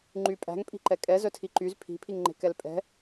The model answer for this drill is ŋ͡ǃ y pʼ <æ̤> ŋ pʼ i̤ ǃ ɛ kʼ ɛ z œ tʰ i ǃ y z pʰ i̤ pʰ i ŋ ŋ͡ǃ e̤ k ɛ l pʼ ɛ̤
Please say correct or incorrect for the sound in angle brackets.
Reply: correct